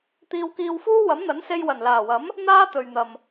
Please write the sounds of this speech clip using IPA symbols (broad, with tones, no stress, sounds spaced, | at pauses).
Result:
t̪ iː˧ w k iː˧ w f uː˥ w ɐ˨˥ m n̪ ɐ˨˥ n s e˧ j w ɐ˨˩ n l aː˨˩ w ɐ˨˥ m | n̪ aː˥ t̪ ɵ˨ ɥ n̪ ɐ˨ m